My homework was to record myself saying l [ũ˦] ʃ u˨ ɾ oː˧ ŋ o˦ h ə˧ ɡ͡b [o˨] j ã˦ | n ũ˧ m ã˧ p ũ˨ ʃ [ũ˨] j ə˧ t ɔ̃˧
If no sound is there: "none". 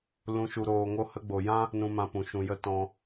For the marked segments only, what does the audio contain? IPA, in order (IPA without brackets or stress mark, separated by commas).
ũ˨, o˨, ũ˨